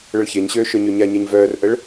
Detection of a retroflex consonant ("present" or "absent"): present